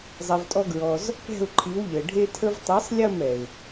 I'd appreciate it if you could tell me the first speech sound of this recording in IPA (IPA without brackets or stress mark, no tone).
zˤ